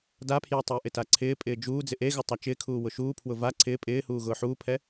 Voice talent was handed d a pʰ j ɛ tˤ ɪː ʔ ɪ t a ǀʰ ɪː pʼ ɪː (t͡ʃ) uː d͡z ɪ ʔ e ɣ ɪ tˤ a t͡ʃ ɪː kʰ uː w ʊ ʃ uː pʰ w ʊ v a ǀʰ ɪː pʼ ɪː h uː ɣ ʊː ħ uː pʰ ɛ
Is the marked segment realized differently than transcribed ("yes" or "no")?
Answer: yes